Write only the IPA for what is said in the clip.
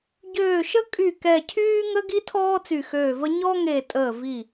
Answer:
ɟ øː˧˩ ʃ ə˦ kʼ y˧˩ k ɛ˧˩ cʰ yː˦ ŋ ə˦ ɡ i˦ tʰ ɔː˦ t͡s y˧˩ x øː˧˩ v ə˦ ɲ ɔ˦ ŋ e˧˩ tʼ əː˧˩ v i˧˩

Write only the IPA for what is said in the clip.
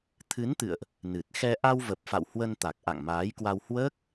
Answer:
t̪ʰ ɨ˨˦ n t̪ ɨ̰˧˨ ə̯ ʔ | n ɨ˨˩ t̚ x ɛ˧ ʔ a˧ w v ə˨˩ p̚ f a̰˧˨ w h w ə˧ n t̪ a˨˩ k̚ ʔ a̰˧˨ ŋ m aː˨˦ j k w a˧ w h w əː˦˥ k̚

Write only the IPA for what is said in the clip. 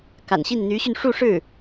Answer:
k a̰˨˩ n ɕ i˥˩ n n̪ y˧˥ ɕ y˧ n ʂ u˥˧ ʂ ɻ̩˥˩

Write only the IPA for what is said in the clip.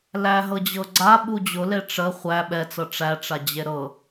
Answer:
l æ ɦ ɤ d͡ʑ ɤ ɡ͡ǀ a ɓ u d͡ʑ ʊ l e ʈ͡ʂ ə χʷ æ ɓ ɛ t͡s ɤ ʈ͡ʂ æ ʈ͡ʂ a d͡ʑ e ɾ ɤ

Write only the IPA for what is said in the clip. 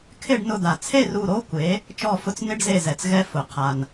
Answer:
kʰ ɪ˥˨ ɖ n ʊ˧˩ d̪ a˩ t͡sʰ e˥˨ r u˧˩ ɾ o˧˥˧ kʷ e˩˥ | t͡ʃ ɔ˧˩ f ʊ˧ t͡s n ɪ˧˥˧ ɖ z e˧˩ z ɛ˩ t͡s ɣ ɛ˧ f ʊ˩ qʰ a˩ n

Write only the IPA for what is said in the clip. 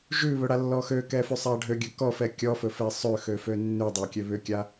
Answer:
ʒ ʉ β ɵ ɽ a lː ɔ x ø k ɛ f ʉ sˤ a ɖʱ ø ɡʲ ɵ k ɔ f ɛ kʲ ɔ f ɵ f ɛ sˤ ø x ø f ø nː ʉ dˤ a kʲ ø β ʏ kʲ a

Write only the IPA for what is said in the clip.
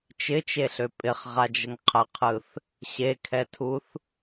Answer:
t͡ʃ ɪ t͡ʃ e ɬ ø pʼ ɪ χ ʁ a d͡ʒ ə ŋ qʰ ə qʰ ɯ θ | ɕ e kʰ ɛ tʰ u θ

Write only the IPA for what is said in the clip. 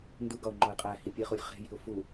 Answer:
n d u ɡ ɒ ʊ̯ ŋ͡ǃ ɒ ɪ̯ qʼ æ h i pʲ e χ u lʲ χ e̤ j i̤ ʊ̯ f u

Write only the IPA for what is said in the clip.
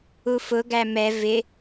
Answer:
u f ʊ ɡ æ m ɛ v ɪ

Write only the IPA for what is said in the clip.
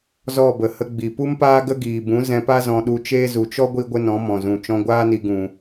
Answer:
z ɔ˦˨ b ə˨ h ə˧ ɡ͡b i˨ p u˦ m p aː˦ ɡ ə˦ ɡ iː˨ b ũ˨˦ z ɛ̃˧ p a˦ z ɔ̃˧ ɗ u˧ t͡ʃ eː˦ z u˨ t͡ʃ ɔ˦ ɡʷ i˦ ɡʷ ə˦ n ɔ̃˨˦ m ɔ̃˨ z ũ˨ t͡ʃ ɔ̃˧ ɡʷ aː˦ n i˧ ɡ ũ˨

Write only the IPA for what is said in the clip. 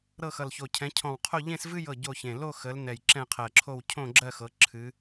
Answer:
ɾ ɤ˥˧ x ʌ˧˩ l ç o˧˩ cʰ ɛ̃˨˦ cʰ ɔ̃˧˩ w qʰ o˥˧ ʎ ẽ˥˧ s v ɨ˥˧ j ɤ˧˩ ɟ o˥˧ ç ẽ˧˩ l o˥˧ x ə˨˦ l n ɛ˧˩ j ǁ ɛ̃˥˧ qʰ ɜ˧˩ ǁʰ o˥˧ w cʰ õ˥˧ ɡ͡ǁ ɜ˥˧ x ɤ˨˦ ǁʰ ɨ˨˦

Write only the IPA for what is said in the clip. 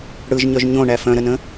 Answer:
ɽ ɯ ʒ ɲ œ ʒ ɲ õ ɳ æ f œ̃ ɾ ə n ə̃

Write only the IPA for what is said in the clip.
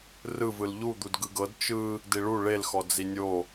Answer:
r ɯ v ɯ l ʎ u d̪ u d ɡ ɯ ɡ ɤ d t͡ʃ ɯ | d i ɭ u ɭ e l x ɔ d͡z i nʲ o

